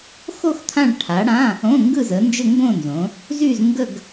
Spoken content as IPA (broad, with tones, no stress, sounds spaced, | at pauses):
x o˥˧ x t̪ʰ ã˥˧ ɭ ʈʰ a˨˦ ɽ ã˧˥˧ | õ˧˥˧ ŋ ɡ ɯ˥˧ z ə˨˦ n d͡ʒ ɘ˥˧ ŋ ɡ õ˥˧ n z õ˨˦ | z y˥˧ z ŋ ɡ ə˥˧ ɡ